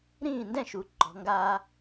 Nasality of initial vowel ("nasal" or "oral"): nasal